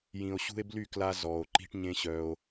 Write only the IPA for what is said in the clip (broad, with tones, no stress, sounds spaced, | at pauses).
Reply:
j ĩ˨ o̯ ɕ ṳ˧ e̯ b l y˦˨ k l a˧ z ɔ˨ o̯ ǃ i̤˦ ʈ ɲ ẽ˦ ɕ œ˧ o̯